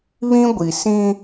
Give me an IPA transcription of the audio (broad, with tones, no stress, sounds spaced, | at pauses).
β ĩ˦ ɡʷ i˨ s ĩ˦